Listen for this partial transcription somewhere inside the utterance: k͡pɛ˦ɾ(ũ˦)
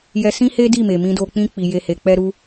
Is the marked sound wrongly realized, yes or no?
yes